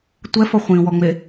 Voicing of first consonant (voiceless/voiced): voiceless